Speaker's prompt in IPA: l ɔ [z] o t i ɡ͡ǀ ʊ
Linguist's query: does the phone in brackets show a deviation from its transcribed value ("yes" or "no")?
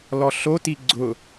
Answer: yes